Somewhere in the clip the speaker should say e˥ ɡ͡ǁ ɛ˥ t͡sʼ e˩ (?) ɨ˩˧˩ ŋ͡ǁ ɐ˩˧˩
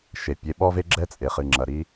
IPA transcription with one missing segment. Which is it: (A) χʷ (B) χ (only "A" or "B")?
B